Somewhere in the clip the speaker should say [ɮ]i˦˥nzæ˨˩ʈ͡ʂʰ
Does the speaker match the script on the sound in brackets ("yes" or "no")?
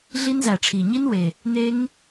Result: yes